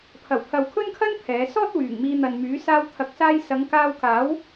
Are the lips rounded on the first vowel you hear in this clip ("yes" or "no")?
no